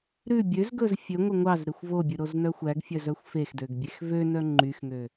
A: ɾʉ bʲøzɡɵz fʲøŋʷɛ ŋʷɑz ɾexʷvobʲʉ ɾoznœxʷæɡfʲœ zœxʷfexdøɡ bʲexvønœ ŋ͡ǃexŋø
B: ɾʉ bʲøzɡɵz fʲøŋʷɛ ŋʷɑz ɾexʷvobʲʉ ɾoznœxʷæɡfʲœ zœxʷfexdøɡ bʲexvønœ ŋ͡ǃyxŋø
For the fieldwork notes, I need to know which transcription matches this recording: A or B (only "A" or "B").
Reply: B